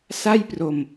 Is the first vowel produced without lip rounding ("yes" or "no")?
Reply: yes